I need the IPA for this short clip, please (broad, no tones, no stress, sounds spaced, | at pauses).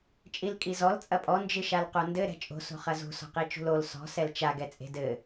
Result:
t͡ʃʼ i l kʼ i z ɔ l t͡sʼ ɐ pʼ ɔ n d͡ʒ ɨ ʃ a l q o n d ɘ ɾ ɛ̤ t͡ʃʼ o̤ s o̤ χ ɐ z ṳ s ɔ̤ q i t͡ʃ ṳ l o l s ɔ̤ s ɛ l t͡ʃ a ɡ ɛ t͡sʼ e̤ d ɘ